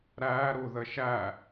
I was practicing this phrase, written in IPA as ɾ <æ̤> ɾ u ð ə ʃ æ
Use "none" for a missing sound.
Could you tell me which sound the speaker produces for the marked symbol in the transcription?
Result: æ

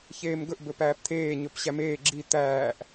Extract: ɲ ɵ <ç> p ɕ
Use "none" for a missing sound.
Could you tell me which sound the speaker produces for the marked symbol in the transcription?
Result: none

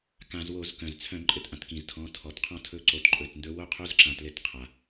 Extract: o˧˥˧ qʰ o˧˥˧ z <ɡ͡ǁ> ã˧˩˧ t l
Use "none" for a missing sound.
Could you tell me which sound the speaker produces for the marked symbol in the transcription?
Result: ǁ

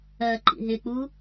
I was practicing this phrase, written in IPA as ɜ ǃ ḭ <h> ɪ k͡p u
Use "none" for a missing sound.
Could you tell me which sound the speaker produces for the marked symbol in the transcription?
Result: ɦ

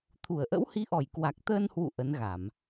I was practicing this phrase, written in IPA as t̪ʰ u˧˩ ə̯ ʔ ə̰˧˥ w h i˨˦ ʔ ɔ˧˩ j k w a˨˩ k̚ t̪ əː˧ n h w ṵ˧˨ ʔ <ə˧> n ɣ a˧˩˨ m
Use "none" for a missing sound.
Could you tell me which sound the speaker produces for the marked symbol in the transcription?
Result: ə˨˦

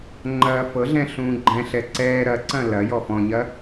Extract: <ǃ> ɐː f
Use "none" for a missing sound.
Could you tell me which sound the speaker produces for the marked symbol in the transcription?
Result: ŋ͡ǃ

